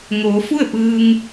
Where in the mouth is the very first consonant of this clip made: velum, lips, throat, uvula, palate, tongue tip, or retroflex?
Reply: velum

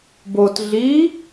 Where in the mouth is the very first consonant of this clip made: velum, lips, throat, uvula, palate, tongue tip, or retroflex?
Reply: lips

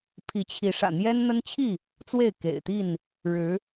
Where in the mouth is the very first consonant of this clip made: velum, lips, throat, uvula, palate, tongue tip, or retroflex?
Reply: lips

